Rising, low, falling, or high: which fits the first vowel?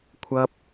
high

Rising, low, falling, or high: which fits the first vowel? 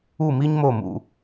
falling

